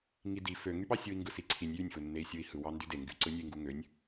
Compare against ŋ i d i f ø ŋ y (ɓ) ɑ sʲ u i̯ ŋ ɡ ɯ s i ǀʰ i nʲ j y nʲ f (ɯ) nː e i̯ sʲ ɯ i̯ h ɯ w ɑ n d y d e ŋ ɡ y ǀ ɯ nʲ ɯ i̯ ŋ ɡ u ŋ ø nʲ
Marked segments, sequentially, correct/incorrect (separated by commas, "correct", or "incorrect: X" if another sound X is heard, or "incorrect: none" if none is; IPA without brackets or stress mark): correct, correct